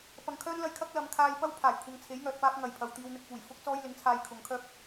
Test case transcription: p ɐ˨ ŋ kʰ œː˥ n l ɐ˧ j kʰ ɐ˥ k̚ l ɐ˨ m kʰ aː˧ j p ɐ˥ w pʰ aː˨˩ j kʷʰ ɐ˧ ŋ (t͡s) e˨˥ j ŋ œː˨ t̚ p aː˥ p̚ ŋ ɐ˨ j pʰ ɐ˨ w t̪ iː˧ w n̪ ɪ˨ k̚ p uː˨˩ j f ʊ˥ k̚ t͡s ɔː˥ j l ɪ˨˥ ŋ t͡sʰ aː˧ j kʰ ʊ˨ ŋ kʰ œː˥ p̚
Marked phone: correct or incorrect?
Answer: incorrect